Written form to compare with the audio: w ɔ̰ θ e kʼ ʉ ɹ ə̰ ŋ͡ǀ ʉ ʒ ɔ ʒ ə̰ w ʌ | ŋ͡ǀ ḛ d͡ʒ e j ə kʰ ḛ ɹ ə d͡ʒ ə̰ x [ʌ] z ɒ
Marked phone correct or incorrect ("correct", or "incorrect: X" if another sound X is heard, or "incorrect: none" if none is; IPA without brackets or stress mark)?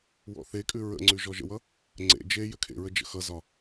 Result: correct